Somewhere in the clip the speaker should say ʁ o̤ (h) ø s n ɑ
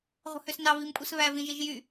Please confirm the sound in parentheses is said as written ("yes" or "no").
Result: yes